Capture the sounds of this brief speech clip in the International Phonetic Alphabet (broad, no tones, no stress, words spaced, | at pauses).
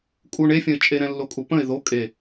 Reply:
kʼuɳ efʲə̃ɪ̯t͡ʃʼe ɾɛ̃lːokʼupə̃ɪ̯ ðo kʼe